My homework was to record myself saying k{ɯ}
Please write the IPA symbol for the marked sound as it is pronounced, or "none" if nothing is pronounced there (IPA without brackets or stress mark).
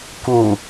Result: u